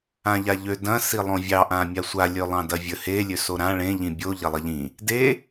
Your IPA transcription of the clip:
ãʎaʎø dɐ̃ silˠõvʲɑ ʔãmʲasʷa lʲølˠɑ̃dɐvʲə he lʲøsoɾã ɭẽ ʎĩbʲo ʎɐlˠɐʎĩ | de

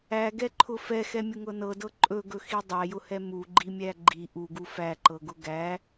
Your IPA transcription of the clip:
æɡɛǃʰʊ fɛxɛmʲʊŋɤ nɤdɤ ǃʼɵɡɵxi dˤæjʊhɛ muɡ͡ǃimʲæ ɡ͡ǃi ʔuɡu fæǃɤɡʊ ɡæ

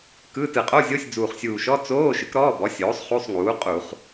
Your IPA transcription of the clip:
kɯ˧˥˧ tɯ˧˩˧qʼo˧˥˧ zʲo˧˥˧sʲ d͡zuː˨˩χsʲuː˨˩ʃɔ˧˥˧ t͡soː˧˥˧ ʃɯ˩˥kɾɔː˧˥˧bɔ˩˥sʲoː˩˥sˤ χu˧˥˧sˤŋuː˩˥ qʼu˧˩˧χ

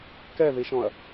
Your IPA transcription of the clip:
kɛðiʃɔ̃ɐ̯

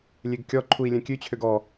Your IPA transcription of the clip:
lʲeɡkʲɔǃʰui̯ lʲɛ̃kʲʉt͡ɕʰøɡ ɔ

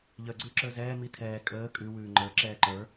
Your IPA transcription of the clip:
ʎəːɡ͡ǀʉ ǁə˞zɛː mitʰɛː kʼəː kʼʉ wʉːŋ͡ǃə˞ ǁɛːǃə˞

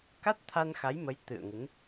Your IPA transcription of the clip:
ka˦˥t̚ t̪ʰa˧nxa˨˦jmə˨˦j t̪ɨ̰˧˨ə̯ŋɨ˨˦n

